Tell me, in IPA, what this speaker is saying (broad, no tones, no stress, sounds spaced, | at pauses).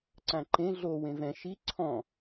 ǀ ã ǃ ẽ ɮ o w ẽ v ɛ̃ ʃ i ǀʰ ɔ̃